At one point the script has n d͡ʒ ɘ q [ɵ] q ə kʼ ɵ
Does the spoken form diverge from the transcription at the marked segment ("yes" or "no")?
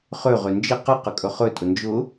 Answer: yes